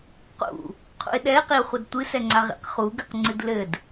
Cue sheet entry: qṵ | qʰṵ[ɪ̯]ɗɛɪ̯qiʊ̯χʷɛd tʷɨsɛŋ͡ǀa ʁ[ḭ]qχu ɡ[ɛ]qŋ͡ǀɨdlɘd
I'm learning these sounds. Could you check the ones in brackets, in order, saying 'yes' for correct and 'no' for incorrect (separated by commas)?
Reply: yes, yes, no